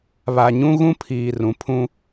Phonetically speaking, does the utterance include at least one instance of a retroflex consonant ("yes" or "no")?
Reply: no